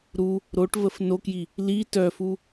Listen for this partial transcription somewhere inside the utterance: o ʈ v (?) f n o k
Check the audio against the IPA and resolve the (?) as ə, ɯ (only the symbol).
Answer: ə